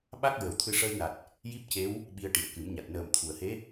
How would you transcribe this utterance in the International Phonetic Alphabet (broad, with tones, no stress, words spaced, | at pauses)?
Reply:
ɓa˦˥k̚ ɹə˨˩˦wt̪ʰɨ˧ ʂəː˧jna˨˩t̚ | ji˦˥p̚ce˧˥w | ɓi˧ə̯ʈi˨˩ə̯kɨ˨˩˦mɲa˨˩t̚ nəː˨˩mt̪ʰu˨˩˨ə̯he˧˥